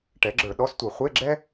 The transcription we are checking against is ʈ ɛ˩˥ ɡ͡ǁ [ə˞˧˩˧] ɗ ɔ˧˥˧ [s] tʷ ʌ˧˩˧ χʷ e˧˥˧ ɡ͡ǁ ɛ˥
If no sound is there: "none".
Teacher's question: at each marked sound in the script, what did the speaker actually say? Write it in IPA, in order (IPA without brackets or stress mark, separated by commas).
ə˞˧˩˧, s